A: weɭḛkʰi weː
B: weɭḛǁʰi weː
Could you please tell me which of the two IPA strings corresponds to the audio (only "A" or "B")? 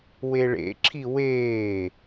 B